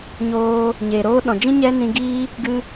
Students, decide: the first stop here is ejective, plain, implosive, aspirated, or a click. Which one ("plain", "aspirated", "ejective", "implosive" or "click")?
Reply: implosive